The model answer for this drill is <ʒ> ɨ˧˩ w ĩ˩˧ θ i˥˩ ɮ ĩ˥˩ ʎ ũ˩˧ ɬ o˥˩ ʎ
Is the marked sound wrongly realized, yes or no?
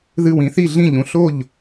yes